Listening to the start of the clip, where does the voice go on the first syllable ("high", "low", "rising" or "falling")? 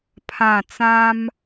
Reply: falling